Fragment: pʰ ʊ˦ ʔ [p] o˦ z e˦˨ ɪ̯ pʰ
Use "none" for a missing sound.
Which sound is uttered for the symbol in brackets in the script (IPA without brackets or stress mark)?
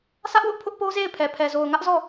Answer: p